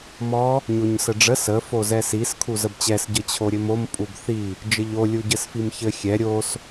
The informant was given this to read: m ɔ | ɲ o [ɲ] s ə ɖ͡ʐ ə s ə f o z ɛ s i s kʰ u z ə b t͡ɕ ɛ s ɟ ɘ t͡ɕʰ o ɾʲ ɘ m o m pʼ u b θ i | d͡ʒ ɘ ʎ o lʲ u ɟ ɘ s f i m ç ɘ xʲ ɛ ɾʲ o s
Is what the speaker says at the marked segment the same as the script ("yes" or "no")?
yes